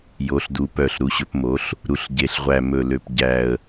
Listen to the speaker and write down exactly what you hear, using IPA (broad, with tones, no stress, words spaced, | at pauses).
jo˩˧ɬdu˩˧ pœ˨˩ɬɾu˩˧ɕɵ˩˧p mo˩˧ɬ | ɾu˨˩ɬɟe˨˩ɬ ʁʷæ˨˩mɵ˨˩lø˨˩p ɟæ˨˩ə̯